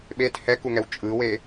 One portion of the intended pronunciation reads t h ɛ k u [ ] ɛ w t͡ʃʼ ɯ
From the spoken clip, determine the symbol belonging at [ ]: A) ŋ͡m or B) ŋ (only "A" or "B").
B